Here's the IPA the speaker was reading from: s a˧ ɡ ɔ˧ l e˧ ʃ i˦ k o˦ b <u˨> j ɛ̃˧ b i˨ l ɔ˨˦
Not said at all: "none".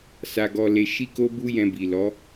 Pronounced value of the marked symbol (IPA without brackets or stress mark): u˦